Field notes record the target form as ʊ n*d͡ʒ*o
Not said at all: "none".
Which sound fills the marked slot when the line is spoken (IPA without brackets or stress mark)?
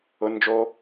d͡ʒ